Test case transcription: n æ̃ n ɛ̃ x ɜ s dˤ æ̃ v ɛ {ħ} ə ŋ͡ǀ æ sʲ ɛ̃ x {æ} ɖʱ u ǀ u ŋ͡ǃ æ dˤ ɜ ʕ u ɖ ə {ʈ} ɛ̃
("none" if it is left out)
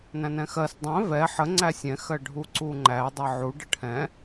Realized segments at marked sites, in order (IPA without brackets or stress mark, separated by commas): ħ, ɜ, ʈʰ